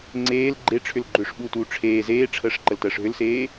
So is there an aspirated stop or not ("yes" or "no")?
yes